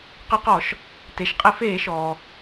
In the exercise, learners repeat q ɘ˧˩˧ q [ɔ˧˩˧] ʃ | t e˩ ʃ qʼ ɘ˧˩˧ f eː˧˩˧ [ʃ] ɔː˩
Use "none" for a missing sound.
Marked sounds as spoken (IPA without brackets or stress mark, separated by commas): ɔ˧˩˧, ʃ